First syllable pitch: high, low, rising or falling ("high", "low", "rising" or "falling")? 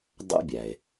high